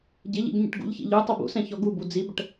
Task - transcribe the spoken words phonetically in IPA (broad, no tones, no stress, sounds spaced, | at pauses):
ɟ ɪ ʎ ḭ ɡ ɲ ḭ ʈ ɡ ṵ ʎ ç ḭ ʎ u tˤ ɛ b ṵ s ɛ̃ ç ɔ ɡ u b u d͡z i b ə ʈ